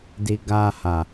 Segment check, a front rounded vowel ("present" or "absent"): absent